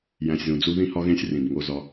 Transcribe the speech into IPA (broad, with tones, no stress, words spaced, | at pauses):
jæ̃˨sʲzũ˨d͡zu˧ ðĩ˧hɒ˧ɣẽ˧sʲ rĩ˨bŋo˧zɒ˧